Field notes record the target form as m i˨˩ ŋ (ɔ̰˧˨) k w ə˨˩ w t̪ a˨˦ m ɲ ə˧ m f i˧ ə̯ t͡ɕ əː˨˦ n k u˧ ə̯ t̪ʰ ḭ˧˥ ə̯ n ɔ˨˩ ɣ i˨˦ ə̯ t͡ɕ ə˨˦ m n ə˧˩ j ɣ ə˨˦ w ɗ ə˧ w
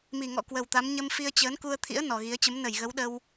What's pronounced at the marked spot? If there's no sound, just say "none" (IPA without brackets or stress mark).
ɔ̰˧˨